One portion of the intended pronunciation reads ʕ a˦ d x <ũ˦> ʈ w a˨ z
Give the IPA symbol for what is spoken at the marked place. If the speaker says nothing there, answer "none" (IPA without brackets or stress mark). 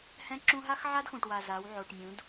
ũ˨